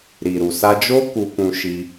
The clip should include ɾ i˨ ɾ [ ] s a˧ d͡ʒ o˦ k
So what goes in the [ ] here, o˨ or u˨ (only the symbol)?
u˨